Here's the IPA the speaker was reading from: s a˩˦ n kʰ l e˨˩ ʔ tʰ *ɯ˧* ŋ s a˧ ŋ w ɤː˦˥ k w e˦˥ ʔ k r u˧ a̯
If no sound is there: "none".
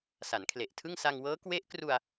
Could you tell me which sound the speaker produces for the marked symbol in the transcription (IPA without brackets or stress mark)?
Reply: ɯ˥˩